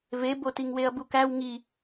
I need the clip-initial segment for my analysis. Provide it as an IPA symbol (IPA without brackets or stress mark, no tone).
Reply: v